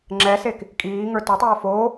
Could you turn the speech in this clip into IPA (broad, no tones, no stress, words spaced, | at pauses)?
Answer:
ŋ͡ǁɛsek | kʼiːŋə˞ totˤoː foː